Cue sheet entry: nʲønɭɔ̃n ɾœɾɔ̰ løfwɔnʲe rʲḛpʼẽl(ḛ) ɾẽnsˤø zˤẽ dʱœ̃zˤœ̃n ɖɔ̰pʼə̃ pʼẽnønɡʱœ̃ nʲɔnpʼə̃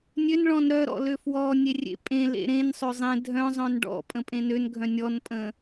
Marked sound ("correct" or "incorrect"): correct